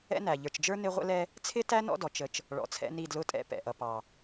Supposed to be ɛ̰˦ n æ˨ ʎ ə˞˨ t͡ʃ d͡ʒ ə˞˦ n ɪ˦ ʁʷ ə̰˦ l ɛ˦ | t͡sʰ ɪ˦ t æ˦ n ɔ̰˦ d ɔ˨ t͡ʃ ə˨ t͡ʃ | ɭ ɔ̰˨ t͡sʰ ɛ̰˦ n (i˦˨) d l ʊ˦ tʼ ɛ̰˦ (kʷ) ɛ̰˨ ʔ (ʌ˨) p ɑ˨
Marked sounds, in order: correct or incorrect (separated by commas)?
correct, incorrect, correct